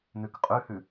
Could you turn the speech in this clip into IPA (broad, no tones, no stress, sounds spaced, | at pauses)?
n ʉ k qʼ ʉ h ʉ